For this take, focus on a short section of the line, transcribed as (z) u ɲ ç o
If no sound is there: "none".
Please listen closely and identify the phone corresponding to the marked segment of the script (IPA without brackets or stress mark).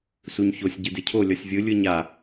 s